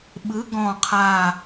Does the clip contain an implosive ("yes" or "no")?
yes